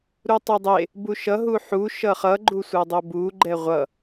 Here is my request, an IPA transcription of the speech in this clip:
ɾutˤodˤe | buʃʌɦu ħuʃʌ χʌɡ͡ǃu sʷʌdˤobu ɡ͡ǃɛʁʷʌ

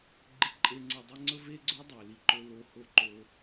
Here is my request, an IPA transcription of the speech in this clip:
ɡ͡ǃi˦ǃʼe˦ ŋ͡ǀe˧dˤe˦ŋ͡ǀɵ˦ ve˦ɡ͡ǀo˦ dˤe˨ li˧ǃɵ˧ lo˧ho˧ǃo˧

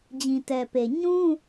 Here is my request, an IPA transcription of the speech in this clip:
d͡ʑĩ˨tɛ˨pe˨ ɲũ˦

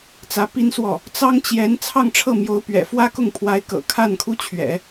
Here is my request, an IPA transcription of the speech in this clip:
t͡sä˧˥pi˥nswɔ˥˩ | t͡sɑ˥ŋt͡ɕjɛ˧˥n t͡sʰɑ˥˧ŋʈ͡ʂʰɤ˥˩mjo˧˥ʊ̯ pɥɛ̰˨˩fwä˥kʊ˥˩ŋpʰwa˧˥ɪ̯ kɤ̰˨˩kʰa˥˩nkʰu˥t͡ɕʰɥɛ̰˨˩˦

